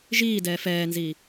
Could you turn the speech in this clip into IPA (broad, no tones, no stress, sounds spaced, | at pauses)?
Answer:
ʒ iː d ɛː f ɛː n z i